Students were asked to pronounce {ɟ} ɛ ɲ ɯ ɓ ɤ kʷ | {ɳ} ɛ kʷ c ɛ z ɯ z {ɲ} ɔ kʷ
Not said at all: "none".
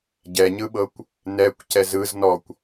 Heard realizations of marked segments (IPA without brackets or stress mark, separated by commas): ɟ, n, n